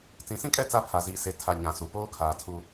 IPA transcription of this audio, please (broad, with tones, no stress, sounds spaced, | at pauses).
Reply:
t͡s ĩ˨ s ĩ˦ kʼ ɛ˦ t͡s a˦ pʰ a˨ z iː˨ s e˨ tʰ a˨ ɲ ã˨ s u˨ p oː˦ kʰ aː˨ tʰ u˦